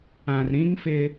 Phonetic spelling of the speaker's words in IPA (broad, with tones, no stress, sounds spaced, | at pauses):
ã˨ r ɾ ĩ˦ ŋ f ɪ˦